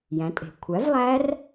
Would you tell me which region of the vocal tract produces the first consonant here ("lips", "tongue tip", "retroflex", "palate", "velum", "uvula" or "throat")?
palate